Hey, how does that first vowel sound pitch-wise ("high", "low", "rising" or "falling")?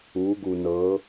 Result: rising